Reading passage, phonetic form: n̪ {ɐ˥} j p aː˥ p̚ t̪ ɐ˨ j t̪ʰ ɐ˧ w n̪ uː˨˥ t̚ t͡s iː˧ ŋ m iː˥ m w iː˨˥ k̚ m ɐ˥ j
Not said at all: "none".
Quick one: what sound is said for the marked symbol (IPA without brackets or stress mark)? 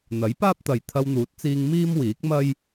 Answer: ɐ˨˥